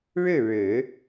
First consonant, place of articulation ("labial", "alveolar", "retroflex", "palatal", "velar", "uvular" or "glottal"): retroflex